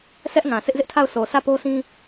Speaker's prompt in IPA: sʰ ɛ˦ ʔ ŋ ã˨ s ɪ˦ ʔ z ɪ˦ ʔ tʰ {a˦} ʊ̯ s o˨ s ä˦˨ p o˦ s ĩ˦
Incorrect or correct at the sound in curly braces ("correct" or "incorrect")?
incorrect